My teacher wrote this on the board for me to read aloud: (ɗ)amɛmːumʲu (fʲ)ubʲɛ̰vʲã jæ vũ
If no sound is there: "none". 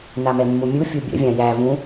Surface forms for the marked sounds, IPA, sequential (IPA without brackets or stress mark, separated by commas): n, fʲ